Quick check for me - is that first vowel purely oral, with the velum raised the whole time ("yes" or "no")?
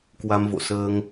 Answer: yes